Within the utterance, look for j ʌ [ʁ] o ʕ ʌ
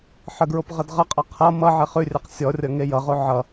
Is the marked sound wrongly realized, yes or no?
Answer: no